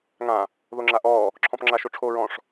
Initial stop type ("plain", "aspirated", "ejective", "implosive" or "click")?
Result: click